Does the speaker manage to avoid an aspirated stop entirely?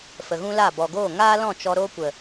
yes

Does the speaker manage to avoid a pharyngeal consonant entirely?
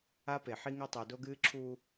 no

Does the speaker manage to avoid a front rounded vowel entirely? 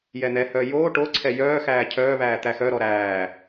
no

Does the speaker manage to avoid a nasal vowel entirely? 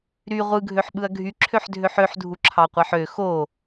yes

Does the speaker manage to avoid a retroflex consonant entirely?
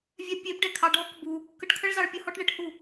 no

